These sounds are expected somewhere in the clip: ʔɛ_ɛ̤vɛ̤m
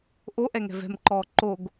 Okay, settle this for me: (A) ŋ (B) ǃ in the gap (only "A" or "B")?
A